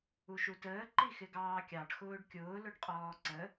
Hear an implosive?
no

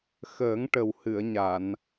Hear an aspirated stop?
no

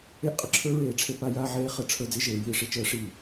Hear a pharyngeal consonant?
yes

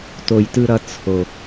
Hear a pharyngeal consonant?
no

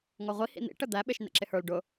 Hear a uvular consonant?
yes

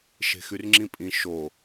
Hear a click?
yes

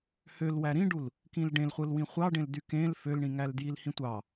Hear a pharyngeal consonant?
no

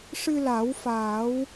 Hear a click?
no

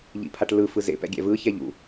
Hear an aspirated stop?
yes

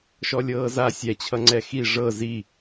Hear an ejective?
no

